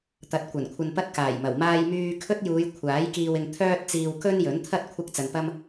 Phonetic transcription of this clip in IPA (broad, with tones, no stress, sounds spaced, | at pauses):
t̪ ɐ˨˥ t̚ kʷ ɐ˨˩ n kʷʰ ɐ˧ n p ɐ˥ t̚ k aː˨˩ j m ɐ˨˩ w m aː˧ j m yː˧ kʰ ɵ˥ t̚ j uː˨˧ j kʷʰ aː˨˥ j k iː˧ w ɪ˧ ŋ t̪ʰ œː˥ t̚ t͡s iː˧ w k ɵ˥ n j ɵ˨˥ n t̪ʰ ɐ˥ t̚ kʷʰ ɐ˥ k̚ t͡s ɐ˧ n p ɐ˥ m